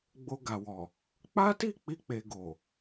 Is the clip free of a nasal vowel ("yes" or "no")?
yes